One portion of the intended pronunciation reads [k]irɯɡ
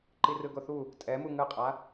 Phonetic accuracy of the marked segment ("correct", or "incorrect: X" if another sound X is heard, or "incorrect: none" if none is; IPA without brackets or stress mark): incorrect: ǃ